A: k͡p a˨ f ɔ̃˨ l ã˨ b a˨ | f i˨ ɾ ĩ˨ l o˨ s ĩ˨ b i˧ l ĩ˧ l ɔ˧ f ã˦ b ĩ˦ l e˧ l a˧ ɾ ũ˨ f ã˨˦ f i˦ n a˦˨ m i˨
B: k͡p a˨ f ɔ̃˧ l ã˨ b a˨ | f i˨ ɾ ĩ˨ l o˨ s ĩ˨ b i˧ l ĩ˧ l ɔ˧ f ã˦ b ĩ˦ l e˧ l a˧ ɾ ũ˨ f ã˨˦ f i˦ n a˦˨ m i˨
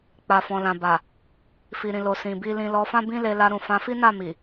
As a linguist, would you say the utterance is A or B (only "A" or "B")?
A